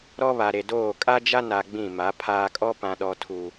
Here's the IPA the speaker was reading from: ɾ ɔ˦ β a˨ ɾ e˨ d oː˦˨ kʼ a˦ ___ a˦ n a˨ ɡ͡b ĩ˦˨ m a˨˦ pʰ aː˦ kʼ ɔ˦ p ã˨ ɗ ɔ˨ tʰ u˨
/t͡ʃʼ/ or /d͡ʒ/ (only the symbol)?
d͡ʒ